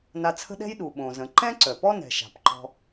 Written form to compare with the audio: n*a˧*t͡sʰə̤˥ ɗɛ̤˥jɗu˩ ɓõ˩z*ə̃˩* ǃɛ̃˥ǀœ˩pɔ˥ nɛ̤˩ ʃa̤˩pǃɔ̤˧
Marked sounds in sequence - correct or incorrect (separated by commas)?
correct, correct